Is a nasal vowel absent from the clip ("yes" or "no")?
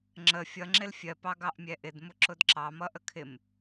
yes